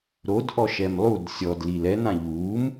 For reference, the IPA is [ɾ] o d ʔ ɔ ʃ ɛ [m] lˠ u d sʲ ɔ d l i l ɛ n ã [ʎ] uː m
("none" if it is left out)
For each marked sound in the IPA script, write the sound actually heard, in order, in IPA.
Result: ɾ, m, ʎ

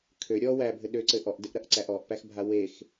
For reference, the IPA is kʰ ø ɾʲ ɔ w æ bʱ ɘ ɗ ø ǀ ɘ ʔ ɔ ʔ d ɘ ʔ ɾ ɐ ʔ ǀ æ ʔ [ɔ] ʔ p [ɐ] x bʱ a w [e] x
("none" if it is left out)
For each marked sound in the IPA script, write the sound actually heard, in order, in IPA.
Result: ɔ, æ, e

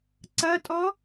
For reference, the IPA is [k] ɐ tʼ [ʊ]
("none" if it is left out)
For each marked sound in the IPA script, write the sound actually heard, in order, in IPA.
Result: ǀ, ɔ

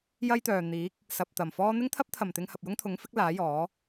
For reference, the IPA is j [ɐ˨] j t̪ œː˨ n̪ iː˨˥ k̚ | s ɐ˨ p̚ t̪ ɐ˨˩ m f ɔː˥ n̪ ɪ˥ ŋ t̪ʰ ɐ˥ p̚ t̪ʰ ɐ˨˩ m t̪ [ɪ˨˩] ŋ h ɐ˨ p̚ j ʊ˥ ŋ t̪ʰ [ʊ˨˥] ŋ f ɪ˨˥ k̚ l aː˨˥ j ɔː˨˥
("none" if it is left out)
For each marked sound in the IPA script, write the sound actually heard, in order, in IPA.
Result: ɐ˥, ɪ˧, ʊ˨˥

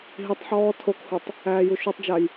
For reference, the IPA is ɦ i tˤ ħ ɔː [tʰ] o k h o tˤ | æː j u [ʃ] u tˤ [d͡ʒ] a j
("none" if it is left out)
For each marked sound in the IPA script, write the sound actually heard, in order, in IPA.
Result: tʰ, ʃ, d͡ʒ

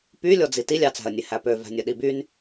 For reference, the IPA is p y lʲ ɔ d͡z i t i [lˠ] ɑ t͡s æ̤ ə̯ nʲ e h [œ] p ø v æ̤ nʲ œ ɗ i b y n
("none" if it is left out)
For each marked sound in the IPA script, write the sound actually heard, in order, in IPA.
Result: lʲ, æ

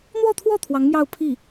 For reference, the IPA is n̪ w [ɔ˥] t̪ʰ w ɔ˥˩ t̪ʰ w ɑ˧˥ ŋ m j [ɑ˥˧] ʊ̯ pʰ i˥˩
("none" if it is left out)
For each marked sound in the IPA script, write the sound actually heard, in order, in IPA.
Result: ɔ˥˧, ɑ˥˧

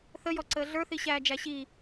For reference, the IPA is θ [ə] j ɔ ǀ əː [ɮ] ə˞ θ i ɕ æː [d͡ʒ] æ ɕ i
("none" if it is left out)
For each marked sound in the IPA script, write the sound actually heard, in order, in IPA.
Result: ə, ɮ, d͡ʒ

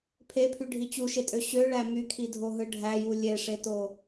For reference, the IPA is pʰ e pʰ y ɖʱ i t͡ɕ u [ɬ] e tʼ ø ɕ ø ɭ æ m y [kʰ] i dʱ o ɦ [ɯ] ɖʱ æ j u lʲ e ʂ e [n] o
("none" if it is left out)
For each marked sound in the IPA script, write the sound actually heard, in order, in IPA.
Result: ʃ, kʰ, ɯ, t

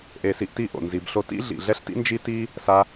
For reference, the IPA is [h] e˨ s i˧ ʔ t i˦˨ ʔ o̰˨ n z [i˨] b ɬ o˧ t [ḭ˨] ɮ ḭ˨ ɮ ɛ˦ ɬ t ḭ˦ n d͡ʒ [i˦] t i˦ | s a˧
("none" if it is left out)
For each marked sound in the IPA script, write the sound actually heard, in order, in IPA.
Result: ʔ, i˨, ḭ˦, i˦

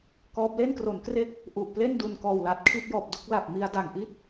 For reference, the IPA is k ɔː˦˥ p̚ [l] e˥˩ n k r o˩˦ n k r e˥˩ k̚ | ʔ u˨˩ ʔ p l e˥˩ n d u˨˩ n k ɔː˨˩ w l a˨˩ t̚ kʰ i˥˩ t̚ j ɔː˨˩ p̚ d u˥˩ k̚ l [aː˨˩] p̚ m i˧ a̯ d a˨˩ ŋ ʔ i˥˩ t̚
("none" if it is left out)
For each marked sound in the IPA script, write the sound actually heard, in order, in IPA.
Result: l, a˨˩

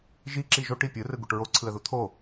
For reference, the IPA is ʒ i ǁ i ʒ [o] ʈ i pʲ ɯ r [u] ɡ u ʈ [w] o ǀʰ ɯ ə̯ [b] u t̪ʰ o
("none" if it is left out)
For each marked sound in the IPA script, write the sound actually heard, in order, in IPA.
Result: o, ɯ, ɹ, ð

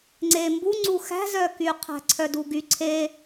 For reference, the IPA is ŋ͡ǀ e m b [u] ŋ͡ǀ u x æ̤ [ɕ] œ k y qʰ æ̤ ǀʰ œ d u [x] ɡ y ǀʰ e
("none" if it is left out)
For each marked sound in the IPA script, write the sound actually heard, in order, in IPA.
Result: u, z, none

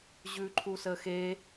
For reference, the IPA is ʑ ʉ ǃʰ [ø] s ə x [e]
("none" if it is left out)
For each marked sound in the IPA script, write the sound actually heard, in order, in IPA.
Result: u, e

